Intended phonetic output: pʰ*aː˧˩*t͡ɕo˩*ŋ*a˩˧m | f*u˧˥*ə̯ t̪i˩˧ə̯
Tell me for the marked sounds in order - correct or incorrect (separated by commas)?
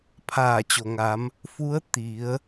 correct, correct, correct